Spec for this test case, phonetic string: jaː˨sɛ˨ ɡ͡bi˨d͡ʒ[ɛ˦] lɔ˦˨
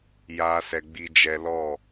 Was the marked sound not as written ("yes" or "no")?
yes